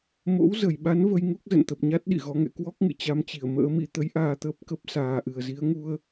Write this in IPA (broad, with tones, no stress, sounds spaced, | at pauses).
m o̰˧˥ w z ə˨˩ j ɓ a˨˦ n v ə˧ j ŋ u˦˥ k̚ z ə̰˧˨ n t̪ ə˨˩ p̚ ɲ a˦˥ t̚ ɗ ḭ˧˨ ɣ ɔ˨˦ ŋ ɛ̰˧˨ k w ɔ˦˥ k̚ ŋ ɨ̰˧˨ t͡ɕ a˧ m t͡ɕ i˧˩ ə̯ m ə̰ː˧˥ m ḭ˧˥ t̪ ə˨˦ j ʔ aː˧ t̪ əː˦˥ p̚ k ə˦˥ p̚ s aː˨˩ ʔ ɨ˨˩ ə̯ z i˨˦ ə̯ ŋ u˧ ə̯